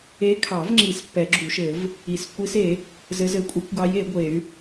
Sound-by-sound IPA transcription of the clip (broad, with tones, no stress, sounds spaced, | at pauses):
e˧˥ kʰ ɑ˨˩˦ v ŋ͡ǁ i˨˩˦ s pː ɛ˨˩˦ ɡ͡ǁ u˨˩˦ ʃ ɘ˨˩˦ v | i˨˩˦ s kʷ i˧˥ s e˨˩˦ | z ɘ˧˥ z ɘ˧˥ kʷʼ ɘ˧˥ kʷ ɡ ɑ˧˥ j e˨˩˦ ɡʷ e˨˩˦ y̯